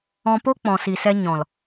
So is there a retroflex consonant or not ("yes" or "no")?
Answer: no